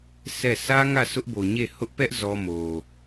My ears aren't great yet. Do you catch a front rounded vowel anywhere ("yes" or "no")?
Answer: no